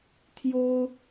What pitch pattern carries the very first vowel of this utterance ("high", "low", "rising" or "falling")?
high